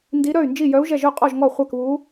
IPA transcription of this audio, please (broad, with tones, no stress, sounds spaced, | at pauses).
n d i˧˥ ɾ œ˥˨ y̯ n d͡ʒ i˥˨ j œ˧˥ u̯ ʒ ɛ˥˨ ʒ œ˥˨ qʼ ɔ˥˨ ʒ ŋ ɔ˥˨ χʷ æ˥˨ k β u˧˥